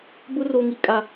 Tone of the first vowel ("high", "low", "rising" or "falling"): high